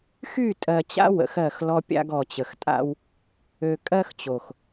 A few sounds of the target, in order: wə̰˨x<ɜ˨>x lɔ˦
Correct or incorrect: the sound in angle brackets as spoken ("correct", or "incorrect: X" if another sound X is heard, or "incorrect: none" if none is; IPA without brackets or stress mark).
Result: incorrect: ɜ˦˨